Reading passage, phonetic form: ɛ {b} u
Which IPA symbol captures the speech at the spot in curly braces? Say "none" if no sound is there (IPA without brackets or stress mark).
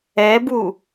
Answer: b